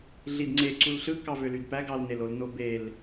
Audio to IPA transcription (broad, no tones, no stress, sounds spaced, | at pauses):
ɮ i d ŋ͡ǀ e ǀ u l ɬ ɯ k ɑ v ø l y d p æ ɡ ɑ l n e l o l n o b e l